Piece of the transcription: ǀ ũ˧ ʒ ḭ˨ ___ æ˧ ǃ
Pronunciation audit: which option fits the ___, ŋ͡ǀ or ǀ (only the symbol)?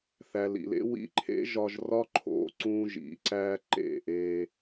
ǀ